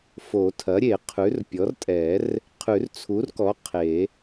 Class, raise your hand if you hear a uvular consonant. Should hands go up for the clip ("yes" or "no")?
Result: yes